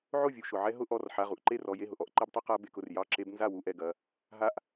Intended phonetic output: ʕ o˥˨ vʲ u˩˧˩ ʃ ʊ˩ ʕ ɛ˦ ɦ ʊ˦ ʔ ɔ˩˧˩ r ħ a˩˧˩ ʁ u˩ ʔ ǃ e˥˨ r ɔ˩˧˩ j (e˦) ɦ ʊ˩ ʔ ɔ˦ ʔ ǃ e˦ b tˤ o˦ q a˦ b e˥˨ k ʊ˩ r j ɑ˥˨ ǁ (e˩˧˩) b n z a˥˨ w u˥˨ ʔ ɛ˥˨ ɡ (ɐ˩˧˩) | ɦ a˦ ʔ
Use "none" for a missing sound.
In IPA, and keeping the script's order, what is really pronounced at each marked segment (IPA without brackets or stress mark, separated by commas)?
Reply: e˥˨, e˦, ɐ˩˧˩